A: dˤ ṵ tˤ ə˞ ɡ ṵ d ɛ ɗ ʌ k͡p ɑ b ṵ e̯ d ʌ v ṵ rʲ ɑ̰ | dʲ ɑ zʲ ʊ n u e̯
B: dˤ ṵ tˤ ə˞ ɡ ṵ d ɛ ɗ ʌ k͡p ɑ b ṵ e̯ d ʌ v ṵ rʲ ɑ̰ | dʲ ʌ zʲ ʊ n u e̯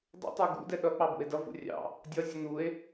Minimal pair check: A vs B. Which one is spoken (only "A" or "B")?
B